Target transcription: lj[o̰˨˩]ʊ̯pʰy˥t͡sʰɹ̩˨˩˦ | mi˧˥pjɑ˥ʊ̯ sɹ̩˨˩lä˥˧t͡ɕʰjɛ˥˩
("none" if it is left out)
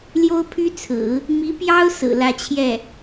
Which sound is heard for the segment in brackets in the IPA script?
o˥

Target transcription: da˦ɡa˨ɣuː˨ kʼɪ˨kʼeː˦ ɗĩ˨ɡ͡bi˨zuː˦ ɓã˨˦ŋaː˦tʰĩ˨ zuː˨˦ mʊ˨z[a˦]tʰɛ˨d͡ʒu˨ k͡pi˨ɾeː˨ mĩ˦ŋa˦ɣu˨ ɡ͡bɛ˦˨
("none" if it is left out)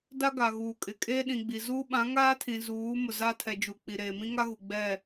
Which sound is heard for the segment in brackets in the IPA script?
a˦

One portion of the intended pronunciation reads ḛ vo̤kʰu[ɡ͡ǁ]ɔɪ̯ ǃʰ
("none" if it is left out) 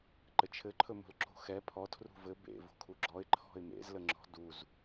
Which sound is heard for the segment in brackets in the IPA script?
ɡ͡ǁ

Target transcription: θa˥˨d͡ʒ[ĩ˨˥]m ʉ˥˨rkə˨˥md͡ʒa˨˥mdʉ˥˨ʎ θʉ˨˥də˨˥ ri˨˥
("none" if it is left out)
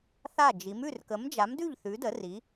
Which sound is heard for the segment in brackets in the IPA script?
i˨˥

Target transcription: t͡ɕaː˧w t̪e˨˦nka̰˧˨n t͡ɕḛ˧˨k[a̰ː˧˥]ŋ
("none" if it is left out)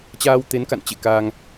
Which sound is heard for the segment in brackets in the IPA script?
aː˧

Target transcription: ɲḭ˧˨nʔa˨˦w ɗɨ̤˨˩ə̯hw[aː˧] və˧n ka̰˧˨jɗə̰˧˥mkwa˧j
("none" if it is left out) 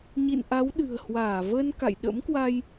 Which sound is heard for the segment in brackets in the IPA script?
aː˧˩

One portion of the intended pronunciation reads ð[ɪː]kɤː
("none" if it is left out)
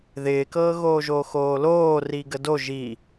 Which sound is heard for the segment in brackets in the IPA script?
ɪː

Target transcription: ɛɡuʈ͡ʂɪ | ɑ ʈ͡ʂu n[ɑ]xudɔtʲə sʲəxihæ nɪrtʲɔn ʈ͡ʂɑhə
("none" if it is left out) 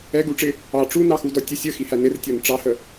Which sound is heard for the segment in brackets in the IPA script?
ɑ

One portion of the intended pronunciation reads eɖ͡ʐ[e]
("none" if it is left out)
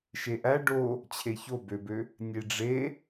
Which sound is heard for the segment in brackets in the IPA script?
e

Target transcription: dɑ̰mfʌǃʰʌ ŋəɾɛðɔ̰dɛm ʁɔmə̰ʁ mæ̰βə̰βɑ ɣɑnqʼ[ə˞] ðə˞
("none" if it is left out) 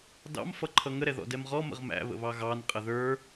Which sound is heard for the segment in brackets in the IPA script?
ə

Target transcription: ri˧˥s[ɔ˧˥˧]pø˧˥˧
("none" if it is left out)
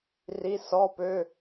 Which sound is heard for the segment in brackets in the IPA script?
ɔ˧˥˧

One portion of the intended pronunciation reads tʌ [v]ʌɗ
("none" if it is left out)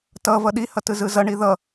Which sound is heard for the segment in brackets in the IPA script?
v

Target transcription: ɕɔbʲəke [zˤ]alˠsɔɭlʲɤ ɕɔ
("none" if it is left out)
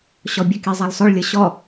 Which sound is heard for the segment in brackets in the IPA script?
zˤ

